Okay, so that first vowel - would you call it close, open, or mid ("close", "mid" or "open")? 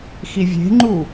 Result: close